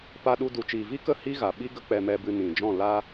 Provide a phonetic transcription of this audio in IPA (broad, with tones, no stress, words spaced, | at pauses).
pa˧ɗu˧ du˨t͡ʃiː˨vi˦kə˦˨ hi˦ɣa˨ɓi˦ ɡə˦k͡pɛ˧mɛ˧bɨ˧ nĩ˨ d͡ʒɔ̃˦˨la˦